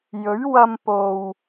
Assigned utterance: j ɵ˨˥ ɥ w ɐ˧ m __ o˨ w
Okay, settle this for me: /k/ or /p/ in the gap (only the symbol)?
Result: p